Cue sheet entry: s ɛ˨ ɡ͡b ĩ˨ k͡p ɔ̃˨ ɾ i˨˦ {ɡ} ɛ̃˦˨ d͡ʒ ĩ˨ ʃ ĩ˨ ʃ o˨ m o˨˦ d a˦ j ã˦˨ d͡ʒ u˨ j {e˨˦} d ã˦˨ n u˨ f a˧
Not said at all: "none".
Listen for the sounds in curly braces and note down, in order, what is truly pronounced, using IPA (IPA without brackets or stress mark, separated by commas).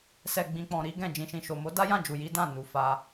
ɡ, i˨˦